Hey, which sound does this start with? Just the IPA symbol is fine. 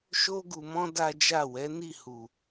ʃ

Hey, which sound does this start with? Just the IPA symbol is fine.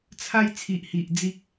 t͡sʰ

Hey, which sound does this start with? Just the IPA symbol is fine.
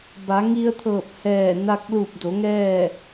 b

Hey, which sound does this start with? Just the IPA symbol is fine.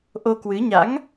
ʔ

